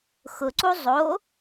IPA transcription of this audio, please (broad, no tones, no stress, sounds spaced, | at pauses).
x ʊ ǀ u zˤ o